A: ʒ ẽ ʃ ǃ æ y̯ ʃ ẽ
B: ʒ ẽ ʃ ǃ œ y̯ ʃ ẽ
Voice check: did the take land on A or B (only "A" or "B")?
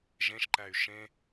A